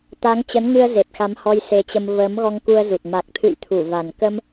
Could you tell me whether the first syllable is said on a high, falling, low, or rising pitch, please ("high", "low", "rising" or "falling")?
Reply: rising